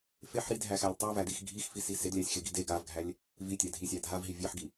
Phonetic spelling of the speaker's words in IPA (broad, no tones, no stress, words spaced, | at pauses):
feħ ɾidɦæxælʲ tˤavædix ɡʱixfisi sedlʲæsʲxeɡi de ɡavɡʱælʲ | vitʲædʱisʲæ dʱavɦi vʲeħɡi